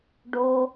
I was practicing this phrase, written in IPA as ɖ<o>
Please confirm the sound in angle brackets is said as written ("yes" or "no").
yes